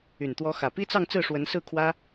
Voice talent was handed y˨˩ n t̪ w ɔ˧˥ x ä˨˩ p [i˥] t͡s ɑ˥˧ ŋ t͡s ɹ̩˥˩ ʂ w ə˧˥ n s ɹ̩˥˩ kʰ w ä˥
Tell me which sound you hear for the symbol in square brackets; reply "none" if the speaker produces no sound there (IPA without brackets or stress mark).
i˥